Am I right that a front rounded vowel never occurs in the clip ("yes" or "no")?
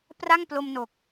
yes